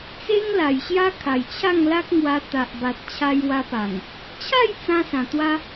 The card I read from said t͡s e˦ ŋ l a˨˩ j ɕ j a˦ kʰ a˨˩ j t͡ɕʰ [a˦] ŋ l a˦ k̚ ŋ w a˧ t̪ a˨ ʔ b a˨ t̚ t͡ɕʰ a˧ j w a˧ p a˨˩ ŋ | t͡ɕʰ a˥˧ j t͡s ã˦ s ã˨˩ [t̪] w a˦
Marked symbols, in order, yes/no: no, yes

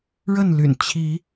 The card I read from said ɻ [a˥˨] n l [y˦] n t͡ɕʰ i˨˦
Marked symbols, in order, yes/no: no, no

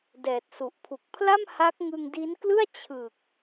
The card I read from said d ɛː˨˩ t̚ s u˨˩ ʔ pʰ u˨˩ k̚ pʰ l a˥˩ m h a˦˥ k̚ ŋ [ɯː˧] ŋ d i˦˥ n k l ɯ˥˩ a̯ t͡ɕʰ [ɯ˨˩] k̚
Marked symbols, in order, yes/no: no, yes

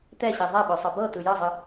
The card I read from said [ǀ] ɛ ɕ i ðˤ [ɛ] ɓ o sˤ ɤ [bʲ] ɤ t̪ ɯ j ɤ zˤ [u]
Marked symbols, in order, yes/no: no, yes, no, no

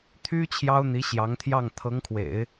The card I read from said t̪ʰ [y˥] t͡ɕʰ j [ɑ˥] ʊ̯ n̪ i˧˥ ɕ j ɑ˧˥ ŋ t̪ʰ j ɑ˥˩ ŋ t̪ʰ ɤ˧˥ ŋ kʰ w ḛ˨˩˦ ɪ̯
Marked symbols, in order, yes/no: yes, yes

